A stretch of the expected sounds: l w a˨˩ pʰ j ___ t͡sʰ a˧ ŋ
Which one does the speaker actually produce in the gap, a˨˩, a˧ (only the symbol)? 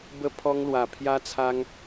a˧